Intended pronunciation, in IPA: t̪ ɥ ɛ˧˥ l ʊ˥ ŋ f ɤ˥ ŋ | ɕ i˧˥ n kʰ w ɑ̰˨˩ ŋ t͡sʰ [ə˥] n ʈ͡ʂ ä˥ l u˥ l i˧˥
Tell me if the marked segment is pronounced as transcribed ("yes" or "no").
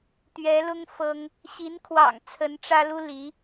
no